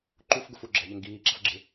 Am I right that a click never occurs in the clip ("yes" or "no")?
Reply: no